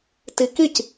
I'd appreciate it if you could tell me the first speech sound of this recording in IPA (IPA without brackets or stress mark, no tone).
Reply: t